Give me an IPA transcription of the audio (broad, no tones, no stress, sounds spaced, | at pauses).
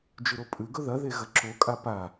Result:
d͡ʒ ʉ ɾ o pʼ ʉ ɡ ɵ ð ɐ ð e ɣ ɐ ǁ o kʼ a p a